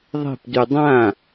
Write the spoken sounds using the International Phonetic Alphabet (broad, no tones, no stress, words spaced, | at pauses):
ðˤe̤pdy dˤã